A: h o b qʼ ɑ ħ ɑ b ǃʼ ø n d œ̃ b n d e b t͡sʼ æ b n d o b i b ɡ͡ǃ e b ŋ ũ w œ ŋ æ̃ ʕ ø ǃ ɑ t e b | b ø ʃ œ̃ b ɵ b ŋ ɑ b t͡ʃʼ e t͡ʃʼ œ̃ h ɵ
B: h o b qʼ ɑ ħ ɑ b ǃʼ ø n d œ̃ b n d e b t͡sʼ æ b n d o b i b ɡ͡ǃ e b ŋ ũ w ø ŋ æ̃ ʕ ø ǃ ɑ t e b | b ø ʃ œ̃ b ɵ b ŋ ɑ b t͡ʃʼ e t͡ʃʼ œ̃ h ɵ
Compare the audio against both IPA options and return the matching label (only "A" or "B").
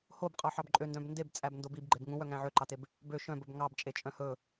A